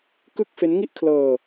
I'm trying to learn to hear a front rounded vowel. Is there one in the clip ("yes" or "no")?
no